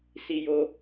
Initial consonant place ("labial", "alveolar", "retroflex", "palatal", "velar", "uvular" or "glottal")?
alveolar